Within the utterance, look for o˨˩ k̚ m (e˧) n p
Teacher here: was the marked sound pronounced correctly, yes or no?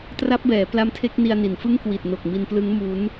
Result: no